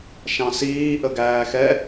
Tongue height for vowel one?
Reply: low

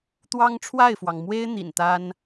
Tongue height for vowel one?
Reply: low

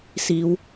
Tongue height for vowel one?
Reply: high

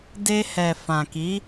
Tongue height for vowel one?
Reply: mid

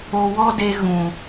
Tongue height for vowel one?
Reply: mid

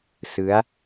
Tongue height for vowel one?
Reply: high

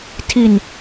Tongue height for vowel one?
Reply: high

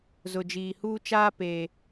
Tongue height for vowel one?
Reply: high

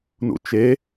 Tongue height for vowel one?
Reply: high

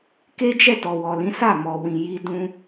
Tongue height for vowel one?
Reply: mid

